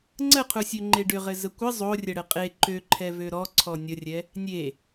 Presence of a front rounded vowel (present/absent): present